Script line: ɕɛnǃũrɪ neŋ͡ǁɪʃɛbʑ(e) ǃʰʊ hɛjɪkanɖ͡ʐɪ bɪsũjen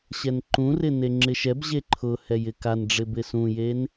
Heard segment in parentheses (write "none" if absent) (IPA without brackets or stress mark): e